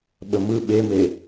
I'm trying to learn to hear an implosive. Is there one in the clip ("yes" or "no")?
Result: yes